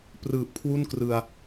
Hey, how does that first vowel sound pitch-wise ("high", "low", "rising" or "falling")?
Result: low